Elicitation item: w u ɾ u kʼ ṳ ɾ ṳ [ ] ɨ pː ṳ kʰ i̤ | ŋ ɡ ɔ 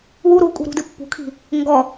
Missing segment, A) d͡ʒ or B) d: B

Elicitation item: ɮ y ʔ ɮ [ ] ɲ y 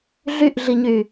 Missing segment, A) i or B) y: A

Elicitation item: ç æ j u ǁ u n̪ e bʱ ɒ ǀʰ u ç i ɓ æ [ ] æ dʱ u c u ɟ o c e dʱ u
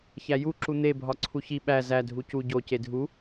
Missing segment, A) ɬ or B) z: B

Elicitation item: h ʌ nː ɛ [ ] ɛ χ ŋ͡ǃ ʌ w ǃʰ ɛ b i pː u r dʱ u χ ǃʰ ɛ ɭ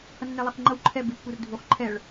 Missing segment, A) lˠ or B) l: A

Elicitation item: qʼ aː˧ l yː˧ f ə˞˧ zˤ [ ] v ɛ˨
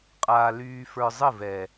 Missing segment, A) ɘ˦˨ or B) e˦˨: A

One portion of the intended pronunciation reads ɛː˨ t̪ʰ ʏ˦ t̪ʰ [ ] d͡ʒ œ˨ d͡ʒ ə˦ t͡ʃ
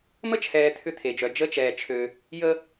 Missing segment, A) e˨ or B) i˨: A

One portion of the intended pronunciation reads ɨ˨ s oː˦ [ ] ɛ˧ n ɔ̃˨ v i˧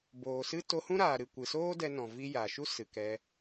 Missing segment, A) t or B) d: B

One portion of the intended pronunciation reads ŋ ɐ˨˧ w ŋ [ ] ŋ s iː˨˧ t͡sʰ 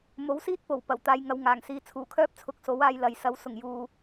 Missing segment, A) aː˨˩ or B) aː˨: A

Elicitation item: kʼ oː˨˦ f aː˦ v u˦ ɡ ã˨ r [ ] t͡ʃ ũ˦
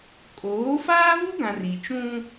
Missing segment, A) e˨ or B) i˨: B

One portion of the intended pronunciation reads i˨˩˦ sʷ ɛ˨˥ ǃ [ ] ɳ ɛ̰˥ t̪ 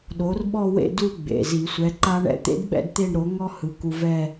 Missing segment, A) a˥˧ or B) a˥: B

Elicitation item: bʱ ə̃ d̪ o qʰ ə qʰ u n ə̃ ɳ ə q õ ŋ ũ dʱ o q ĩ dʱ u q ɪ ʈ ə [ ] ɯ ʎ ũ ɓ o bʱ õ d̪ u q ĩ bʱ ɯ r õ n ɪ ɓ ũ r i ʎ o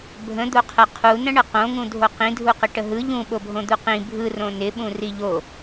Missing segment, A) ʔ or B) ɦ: B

